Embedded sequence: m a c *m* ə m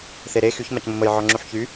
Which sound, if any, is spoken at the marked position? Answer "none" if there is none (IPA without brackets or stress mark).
m